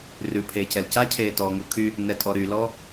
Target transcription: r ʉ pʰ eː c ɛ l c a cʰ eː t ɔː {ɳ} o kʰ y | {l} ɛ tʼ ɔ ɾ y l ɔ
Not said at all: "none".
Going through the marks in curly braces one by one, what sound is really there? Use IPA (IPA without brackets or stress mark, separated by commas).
ŋ, n